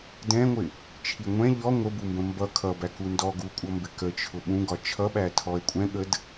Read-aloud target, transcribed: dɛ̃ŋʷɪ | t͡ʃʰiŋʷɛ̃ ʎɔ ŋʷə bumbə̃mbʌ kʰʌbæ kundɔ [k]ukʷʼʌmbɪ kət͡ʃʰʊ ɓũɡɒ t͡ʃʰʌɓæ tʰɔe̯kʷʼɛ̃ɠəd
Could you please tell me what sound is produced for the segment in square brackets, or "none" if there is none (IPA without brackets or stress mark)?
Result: ɡ